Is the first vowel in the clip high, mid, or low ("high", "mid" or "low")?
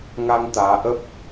low